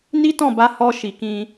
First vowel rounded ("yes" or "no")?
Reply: no